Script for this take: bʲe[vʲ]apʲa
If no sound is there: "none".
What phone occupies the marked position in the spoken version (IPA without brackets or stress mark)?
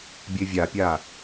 vʲ